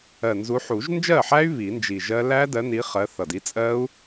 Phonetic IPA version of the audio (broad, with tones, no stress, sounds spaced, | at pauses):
ɜ˨˩ n z u˨˦ ħ u˨˩˦ ʒ n d͡ʒ ɜ˥˩ ħ æ˦˥ y̯ β i˨˩˦ n d͡ʒ i˨˩ ʒ ɜ˦˥ l æ˦˥ d ɜ˨˦ n i˨˦ χ ɜ˨˦ θ ʌ˨˩ d i˨˦ t͡sʼ ɜ˦˥ u̯